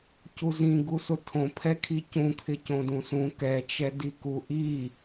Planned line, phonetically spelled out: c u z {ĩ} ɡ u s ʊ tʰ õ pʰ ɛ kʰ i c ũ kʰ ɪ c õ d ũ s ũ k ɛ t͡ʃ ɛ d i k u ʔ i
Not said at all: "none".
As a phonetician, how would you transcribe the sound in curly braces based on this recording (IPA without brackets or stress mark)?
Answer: ĩ